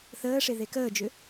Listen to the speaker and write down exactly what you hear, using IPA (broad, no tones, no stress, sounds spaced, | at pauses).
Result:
θ əː ʂ e ð e k əː d͡ʒ ʏ